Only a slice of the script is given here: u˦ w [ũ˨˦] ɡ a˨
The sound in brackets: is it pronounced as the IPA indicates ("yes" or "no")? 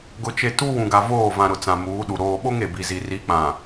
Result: no